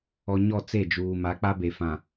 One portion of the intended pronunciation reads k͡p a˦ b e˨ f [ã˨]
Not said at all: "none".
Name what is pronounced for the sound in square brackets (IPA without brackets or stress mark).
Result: ã˨